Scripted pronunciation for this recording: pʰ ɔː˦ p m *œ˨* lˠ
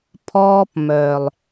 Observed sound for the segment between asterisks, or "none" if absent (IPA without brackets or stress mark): œ˨